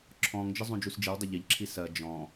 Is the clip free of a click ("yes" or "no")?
no